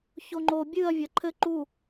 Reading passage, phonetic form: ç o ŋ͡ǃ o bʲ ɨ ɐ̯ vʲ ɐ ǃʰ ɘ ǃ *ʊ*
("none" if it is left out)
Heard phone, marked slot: u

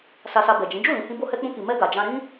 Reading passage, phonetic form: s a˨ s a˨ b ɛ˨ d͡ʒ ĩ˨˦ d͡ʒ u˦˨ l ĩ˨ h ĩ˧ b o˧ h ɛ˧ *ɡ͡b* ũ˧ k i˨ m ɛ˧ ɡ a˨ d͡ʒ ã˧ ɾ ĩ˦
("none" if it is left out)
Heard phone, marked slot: k͡p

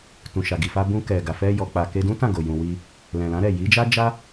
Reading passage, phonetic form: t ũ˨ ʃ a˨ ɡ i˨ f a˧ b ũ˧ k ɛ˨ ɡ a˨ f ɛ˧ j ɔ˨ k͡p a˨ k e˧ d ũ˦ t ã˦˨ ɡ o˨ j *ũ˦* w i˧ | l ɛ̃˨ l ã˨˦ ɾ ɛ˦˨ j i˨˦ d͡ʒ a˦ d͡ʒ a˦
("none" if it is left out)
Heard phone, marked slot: ũ˨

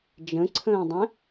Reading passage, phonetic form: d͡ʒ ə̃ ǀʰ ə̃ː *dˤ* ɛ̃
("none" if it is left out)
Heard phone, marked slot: dˤ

